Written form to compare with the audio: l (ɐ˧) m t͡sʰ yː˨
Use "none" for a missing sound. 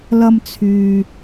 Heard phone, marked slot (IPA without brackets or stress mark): ɐ˧